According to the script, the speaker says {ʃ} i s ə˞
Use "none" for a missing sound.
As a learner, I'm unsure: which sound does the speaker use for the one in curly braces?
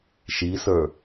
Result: ʃ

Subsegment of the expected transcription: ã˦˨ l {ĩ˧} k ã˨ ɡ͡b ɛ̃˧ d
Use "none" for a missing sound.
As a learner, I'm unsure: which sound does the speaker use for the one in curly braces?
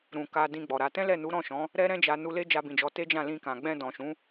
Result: ĩ˧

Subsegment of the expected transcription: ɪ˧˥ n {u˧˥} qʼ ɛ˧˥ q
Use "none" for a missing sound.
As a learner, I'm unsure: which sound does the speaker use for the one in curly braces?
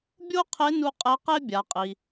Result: u˧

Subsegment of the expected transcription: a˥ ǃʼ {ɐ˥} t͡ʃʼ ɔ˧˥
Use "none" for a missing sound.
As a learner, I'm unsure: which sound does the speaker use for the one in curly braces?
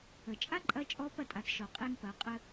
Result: ɐ˧˥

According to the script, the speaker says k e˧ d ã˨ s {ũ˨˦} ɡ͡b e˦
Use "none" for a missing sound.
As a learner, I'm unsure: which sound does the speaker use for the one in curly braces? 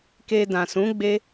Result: ũ˨˦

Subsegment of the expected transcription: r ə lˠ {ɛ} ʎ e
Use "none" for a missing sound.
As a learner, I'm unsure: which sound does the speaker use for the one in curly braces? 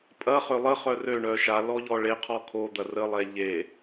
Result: ɛ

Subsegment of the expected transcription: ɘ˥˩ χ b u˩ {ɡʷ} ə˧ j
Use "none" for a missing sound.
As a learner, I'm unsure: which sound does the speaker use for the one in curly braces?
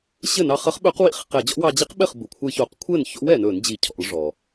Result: kʷʰ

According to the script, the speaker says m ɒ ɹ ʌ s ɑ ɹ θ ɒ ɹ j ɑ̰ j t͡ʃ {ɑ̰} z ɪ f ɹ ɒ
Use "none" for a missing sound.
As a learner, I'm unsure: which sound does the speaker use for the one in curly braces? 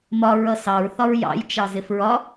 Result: ɑ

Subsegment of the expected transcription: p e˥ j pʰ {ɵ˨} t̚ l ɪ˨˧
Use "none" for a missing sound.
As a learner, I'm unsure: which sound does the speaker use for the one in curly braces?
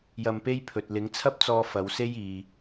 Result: ɵ˨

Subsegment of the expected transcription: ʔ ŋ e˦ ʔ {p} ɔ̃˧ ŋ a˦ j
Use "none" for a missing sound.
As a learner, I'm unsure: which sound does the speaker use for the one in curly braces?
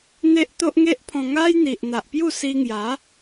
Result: pʰ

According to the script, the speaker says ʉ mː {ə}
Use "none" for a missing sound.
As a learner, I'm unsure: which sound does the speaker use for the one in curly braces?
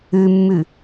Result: ʉ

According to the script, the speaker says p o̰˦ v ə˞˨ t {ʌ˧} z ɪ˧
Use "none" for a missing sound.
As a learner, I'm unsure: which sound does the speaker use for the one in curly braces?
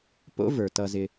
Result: ʌ˧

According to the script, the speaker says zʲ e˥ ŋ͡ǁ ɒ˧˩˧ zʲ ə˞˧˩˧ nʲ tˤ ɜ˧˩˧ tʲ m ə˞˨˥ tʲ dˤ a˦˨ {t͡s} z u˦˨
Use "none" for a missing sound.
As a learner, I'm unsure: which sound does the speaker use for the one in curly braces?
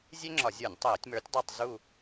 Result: tˤ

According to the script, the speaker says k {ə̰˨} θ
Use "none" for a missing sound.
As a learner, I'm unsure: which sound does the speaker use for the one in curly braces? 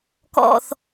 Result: ɔ̰˨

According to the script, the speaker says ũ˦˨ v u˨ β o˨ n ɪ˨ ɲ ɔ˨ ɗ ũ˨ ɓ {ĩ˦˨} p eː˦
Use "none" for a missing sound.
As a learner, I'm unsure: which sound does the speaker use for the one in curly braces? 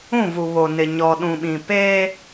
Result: ĩ˨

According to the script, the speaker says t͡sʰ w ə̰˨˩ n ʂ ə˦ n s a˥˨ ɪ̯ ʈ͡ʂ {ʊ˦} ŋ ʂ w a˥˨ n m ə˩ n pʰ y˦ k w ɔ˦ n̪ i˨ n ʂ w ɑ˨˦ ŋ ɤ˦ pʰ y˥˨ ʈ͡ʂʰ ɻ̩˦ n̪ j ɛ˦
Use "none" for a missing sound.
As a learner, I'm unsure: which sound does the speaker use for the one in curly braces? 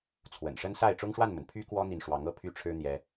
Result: ʊ˦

